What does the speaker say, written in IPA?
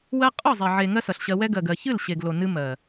w ɜ˦ qʼ ɔ˦˨ zˤ ɛ˨ ʕ e˨ ŋ ɜ˦ s ʌ˨ ɬ ɕ ɜ˧ w ɛ˦ ɡ ɜ˨ ɡ ɜ˨ ç ɨ˦˨ l ɕ e˨ ɡ l o˨ n ɨ˦ m ɜ˨

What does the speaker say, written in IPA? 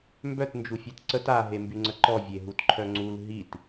m b œ t n d͡ʒ u fʲ ɛ t ǀ ə t a ɦ e m b y ŋ͡ǀ ə ǃ ɔ vʲ e ɦ u t ǃʰ œ ŋ͡ǀ u l ɦ i t

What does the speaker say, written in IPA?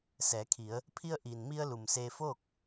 s ɛː˩˧ kʰ i˩˧ ə̯ | pʰ i˧ ə̯ ʔ iː˩ n m i˧ ə̯ l u˩ m s eː˧ f oː˥˨ k̚

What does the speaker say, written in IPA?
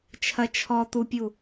t͡ʃʰ ɐ t͡ʃʰ ɔ t̪ u pʲ u

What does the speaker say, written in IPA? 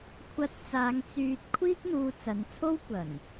kʷʰ ɐ˧ t̚ t͡s aː˨˧ ŋ t͡s yː˨ t̚ kʷʰ iː˥ k̚ n̪ uː˧ t͡s ɐ˨˧ n t͡sʰ o˥ w kʷ ɐ˨˩ n

